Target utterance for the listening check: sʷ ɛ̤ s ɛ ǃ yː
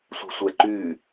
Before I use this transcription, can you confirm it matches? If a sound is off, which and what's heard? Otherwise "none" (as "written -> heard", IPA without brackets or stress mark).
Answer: s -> sʷ